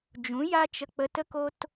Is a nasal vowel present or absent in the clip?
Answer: present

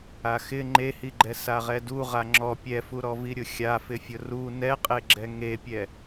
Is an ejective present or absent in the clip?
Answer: present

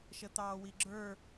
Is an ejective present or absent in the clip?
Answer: absent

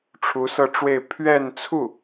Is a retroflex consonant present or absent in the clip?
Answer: present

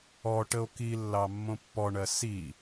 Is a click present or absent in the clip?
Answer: absent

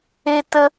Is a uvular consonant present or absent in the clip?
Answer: absent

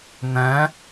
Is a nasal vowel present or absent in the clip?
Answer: present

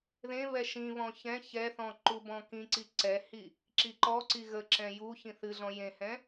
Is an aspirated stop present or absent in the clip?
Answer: absent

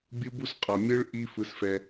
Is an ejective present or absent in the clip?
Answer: present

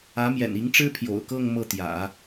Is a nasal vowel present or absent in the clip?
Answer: absent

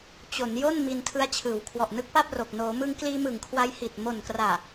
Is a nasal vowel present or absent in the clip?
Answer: absent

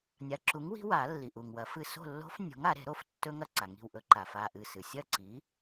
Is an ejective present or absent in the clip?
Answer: absent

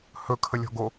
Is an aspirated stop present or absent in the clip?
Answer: present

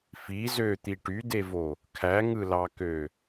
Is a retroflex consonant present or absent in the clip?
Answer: present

